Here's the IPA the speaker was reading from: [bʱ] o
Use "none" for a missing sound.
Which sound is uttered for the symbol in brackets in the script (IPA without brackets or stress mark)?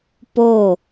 p